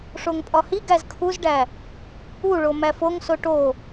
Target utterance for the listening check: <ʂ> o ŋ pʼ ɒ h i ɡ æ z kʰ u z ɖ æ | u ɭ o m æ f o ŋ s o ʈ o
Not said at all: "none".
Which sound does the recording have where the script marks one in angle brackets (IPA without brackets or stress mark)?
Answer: ʂ